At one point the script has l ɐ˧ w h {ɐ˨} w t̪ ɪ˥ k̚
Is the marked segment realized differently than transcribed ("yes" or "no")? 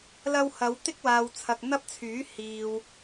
yes